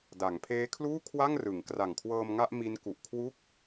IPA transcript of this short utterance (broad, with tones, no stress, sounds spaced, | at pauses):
d a˩˦ ŋ pʰ eː˦˥ kʰ l uː˥˩ kʰ w a˥˩ ŋ r ɯ˩˦ ŋ k r a˨˩ ŋ kʰ w ɤː˧ m ŋ a˥˩ ʔ m i˦˥ n k u˨˩ ʔ kʰ w u˥˩ k̚